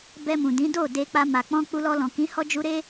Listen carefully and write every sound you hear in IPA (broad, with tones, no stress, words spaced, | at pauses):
bɛ˧mũ˨dĩ˨˦ do˦˨de˧ k͡pa˧ma˨ k͡pɔ̃˧ k͡pu˧lɔ˧lɔ̃˨kĩ˨˦ hɔ˦d͡ʒu˦ɾe˦